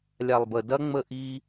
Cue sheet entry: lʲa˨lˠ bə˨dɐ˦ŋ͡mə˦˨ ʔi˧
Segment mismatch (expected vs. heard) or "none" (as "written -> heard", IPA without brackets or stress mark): none